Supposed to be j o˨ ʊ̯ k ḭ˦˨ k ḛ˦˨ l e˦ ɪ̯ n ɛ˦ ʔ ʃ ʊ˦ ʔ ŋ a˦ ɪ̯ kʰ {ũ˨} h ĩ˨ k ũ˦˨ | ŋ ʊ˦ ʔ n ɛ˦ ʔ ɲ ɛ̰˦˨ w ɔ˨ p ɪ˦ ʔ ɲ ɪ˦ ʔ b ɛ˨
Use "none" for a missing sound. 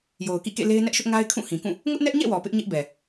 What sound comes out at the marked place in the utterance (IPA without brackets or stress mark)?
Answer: ũ˦˨